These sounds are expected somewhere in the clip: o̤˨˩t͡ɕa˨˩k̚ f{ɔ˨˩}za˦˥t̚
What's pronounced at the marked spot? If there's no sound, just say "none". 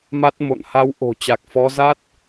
ɔ˨˦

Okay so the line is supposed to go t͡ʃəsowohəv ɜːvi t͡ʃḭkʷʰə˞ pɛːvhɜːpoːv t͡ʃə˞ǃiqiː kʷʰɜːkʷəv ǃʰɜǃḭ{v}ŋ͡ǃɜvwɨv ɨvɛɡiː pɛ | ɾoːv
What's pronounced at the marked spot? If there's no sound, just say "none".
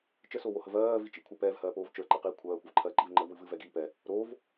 v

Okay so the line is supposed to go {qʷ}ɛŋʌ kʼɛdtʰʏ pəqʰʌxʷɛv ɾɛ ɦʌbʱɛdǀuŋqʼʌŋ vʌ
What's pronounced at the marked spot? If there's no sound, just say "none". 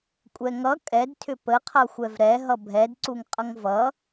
kʷʼ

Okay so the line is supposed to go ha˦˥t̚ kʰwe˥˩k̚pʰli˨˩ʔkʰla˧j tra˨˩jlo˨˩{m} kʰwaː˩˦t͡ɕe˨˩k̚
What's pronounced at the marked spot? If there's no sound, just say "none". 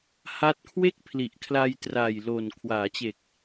n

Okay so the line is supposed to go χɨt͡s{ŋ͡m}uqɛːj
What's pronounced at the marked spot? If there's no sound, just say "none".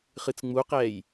ŋ͡m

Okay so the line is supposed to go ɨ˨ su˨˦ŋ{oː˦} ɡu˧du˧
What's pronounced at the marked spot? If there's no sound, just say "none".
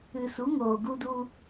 oː˨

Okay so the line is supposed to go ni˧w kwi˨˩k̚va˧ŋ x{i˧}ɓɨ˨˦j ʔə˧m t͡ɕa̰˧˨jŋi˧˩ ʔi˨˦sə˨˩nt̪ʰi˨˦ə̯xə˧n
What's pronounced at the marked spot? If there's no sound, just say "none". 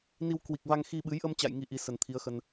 i˧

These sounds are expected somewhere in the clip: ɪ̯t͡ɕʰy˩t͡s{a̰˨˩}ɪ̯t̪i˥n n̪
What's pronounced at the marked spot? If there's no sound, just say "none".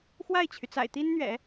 a̰˨˩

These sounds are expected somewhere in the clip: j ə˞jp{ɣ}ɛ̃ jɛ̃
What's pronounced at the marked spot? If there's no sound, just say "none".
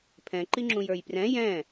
r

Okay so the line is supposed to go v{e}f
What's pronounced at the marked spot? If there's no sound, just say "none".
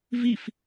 i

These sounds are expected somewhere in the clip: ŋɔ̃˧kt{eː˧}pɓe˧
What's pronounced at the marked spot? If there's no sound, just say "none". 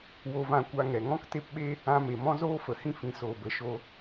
e˧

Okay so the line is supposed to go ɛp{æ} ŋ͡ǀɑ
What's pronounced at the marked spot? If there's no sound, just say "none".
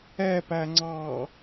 æ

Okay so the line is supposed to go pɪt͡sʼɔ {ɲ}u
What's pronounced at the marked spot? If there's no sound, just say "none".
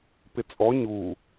ɲ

